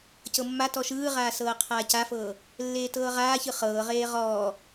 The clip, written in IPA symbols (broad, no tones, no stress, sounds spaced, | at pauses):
c ɤ mː a t ɔ ʃ ɯː ʁ aː s ɤː qʰ aː c a f ɤː | lː eː t ɤː ʁ aː ç ɯ χ ɤː ʁ eː ʁ ɔː